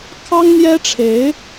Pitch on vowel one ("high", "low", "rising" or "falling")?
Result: high